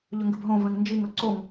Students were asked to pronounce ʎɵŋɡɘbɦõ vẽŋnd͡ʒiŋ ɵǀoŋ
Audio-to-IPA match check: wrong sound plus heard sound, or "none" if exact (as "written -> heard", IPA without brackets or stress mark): none